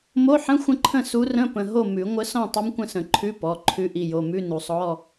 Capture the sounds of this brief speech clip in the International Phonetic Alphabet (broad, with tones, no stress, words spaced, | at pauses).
mo˧˥˧ħə̃˧˥˧ xʷə̃˥˨ǃʰə̃˥˨ su˧˥rə̃˧˥˧pə̃˩˧˩ ɦo˥˨mʉ˨˩˦ ŋʷə˧˥sɔ̃˥˨ tˤə˧˥m kʷə̃˥˨sə̃˨˩˦ǃʰʉ˧˥˧ pɔ˩˧˩ ǃʰʉ˧˥ʔi˩˧˩jo˩˧˩mʉ˧˥˧ nu˨˩˦sˤɔ˧˥˧